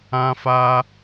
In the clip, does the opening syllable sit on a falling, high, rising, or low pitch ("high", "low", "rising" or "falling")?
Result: high